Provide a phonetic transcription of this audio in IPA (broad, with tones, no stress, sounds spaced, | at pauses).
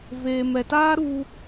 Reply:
v eː˨ m ɛ˨ t aː˦ ɾ u˧